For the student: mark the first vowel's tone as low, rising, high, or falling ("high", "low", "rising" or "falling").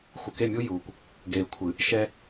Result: low